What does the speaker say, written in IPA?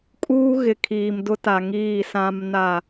kʼ uː˦ ɣ ɪ˨ kʰ iː˨ m d ʊ˦ t a˨ ŋ iː˦˨ s ã˦ m n a˦˨

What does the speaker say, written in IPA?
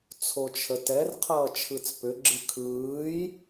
t͡sʰ o t͡ʃʰ ə t ɛ r qʰ ʌː t͡ʃʰ ɯ t͡s p ʏ ɡ͡ǁ ɨ kʰ ɯː j

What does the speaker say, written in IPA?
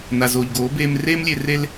n a˨ z oː˨ ʎ ɡ oː˨˦ b eː˧ m r eː˦ m lʲ e˧ r e˧ l

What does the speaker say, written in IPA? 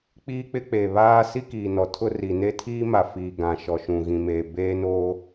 k͡p iː˦ k͡p ɪ˦ k͡p eː˨ β aː˦ s i˦ k iː˨ n ɔ˨ tʰ ʊ˦ r i˨ n e˦ tʰ iː˦ m a˨ f iː˨ ɡ ã˨ ʃ ɔ˨ ʃ ũ˨ ɣ ĩ˨ m eː˨ b eː˦ n o˦

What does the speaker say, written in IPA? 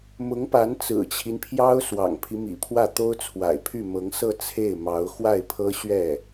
m ʊ˧˥ ŋ p a˧˥ n t͡s ɹ̩˨˩ t͡ɕʰ i˦ n pʰ j ɑ˥ ʊ̯ s w ɑ̰˨˩ ŋ pʰ i˦ m ḭ˨˩ pʰ w ä˥˩ t̪ o˥ ʊ̯ t͡sʰ w a̰˨˩ ɪ̯ pʰ y˥˩ m ɤ˧˥ ŋ s ɤ˥˧ t͡sʰ e˥˩ ɪ̯ m ɑ˧˥ ʊ̯ x w a˥˩ ɪ̯ pʰ ɤ˥ ɕ ɥ ɛ˥˩

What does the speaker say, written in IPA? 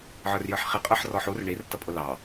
ʕ ə˞ r j ə˞ ħ χ i qʼ ə˞ ħ r ɔ ħ u r ɳ i r t ʌ pʼ ʊ l ɑ

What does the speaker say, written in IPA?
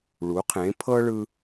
ɭ u˩˧ qʰ ẽ˩˧ pʰ ɤ˥ ɭ ɯ˧

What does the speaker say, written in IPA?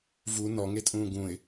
v u n ɔ ŋ e tʼ ũː ɡ ũ ɪ̯

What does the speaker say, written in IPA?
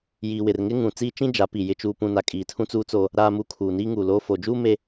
j iː˨ w ɪ˨ r ŋ ɪ˦ ŋ ũ˨ t͡s iː˦ t͡ʃ ĩ˦ d͡ʒ a˨˦ p i˨ j ɪ˨ t͡ʃ uː˨ p ũ˨ n a˨ kʼ iː˨ tʰ ũ˦ t͡s uː˦ t͡s oː˦ | ɾ aː˨ m u˨ kʰ uː˨ n iː˦ ŋ uː˨ l oː˦ f oː˨ d͡ʒ uː˦ m e˦

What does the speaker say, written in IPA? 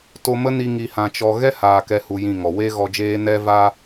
t o˧ m ə˦ n i˧ ŋ i˧ h ã˧ t͡ʃ ɔ˧ ɣ ɛ˦ h aː˨ k ɛ˦ h u˧ j ĩ˦˨ ŋ ɔ˨ w e˦ ɣ ɔ˧ d͡ʒ eː˦ n ɛ˦ v a˦

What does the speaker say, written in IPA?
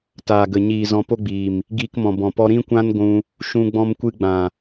t aː˨ ɡ ə˨ ɲ iː˨ z ɔ̃˧ p o˦ ɡ͡b iː˨ m | ɡ iː˧ k m ɔ̃˨ b ɔ̃˨ p ɔ˧ ɾ ĩ˦ kʷ ã˦ n ɡʷ ũ˧ | ʃ ũ˧ ɡ͡b ɔ̃˧ m kʷ ɨ˧ ɡ͡b ã˨

